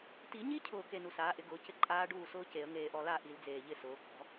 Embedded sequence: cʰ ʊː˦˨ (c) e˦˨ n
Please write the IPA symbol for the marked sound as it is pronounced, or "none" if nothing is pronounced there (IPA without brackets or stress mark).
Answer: k